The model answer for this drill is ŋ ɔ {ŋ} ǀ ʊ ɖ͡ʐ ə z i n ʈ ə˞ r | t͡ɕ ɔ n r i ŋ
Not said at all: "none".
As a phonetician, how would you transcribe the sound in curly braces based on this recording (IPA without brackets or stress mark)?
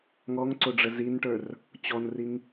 ŋ